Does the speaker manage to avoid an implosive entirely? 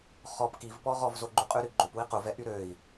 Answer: yes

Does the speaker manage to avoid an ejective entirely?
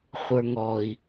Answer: yes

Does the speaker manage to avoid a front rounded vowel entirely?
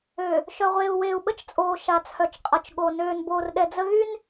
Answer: no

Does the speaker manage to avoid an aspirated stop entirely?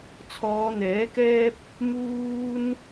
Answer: no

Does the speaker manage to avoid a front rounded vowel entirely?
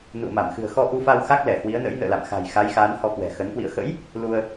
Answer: yes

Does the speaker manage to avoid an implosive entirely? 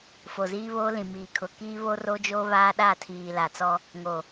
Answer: no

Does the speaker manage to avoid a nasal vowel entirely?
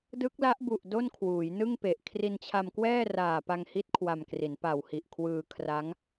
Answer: yes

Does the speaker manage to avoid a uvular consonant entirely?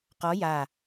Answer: no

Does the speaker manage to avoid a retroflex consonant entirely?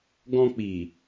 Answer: yes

